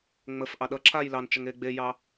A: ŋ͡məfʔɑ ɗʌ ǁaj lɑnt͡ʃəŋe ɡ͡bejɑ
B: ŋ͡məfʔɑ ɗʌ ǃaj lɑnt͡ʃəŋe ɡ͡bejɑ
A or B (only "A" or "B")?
A